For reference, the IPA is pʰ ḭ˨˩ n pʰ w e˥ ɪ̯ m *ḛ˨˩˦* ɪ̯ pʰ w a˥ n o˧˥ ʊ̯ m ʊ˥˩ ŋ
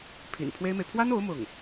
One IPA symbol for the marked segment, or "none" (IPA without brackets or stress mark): e˨